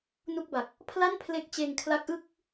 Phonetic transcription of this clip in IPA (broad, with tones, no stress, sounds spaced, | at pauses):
n u˥˩ k̚ b a˨˩ k̚ | pʰ l a˥˩ n pʰ l e˦˥ k̚ t͡ɕ eː˧ ŋ kʰ l a˦˥ k̚ ʔ ɯ˥˩ k̚